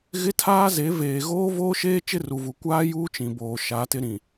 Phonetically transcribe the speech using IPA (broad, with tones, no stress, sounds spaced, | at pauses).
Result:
ɣ ɪ˦ tʰ aː˦ z e˨˦ v eː˨ ɣ oː˦ v oː˦ ʃ eː˦ t͡ʃ ɪ˦ r u˨ v u˨ kʷ aː˦ j uː˦ t͡ʃ ĩ˨ b oː˨ ʃ a˨˦ t ɪ˦ ɾ ĩ˨